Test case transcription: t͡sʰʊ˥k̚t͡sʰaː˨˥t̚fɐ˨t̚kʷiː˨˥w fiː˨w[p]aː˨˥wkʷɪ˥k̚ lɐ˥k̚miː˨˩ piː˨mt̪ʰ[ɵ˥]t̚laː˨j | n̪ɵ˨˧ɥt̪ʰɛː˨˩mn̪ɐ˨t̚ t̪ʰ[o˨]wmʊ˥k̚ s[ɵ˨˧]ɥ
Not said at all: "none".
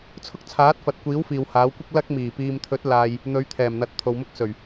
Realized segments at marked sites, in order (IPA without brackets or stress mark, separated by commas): h, ɵ˨˥, o˨, ɵ˨˩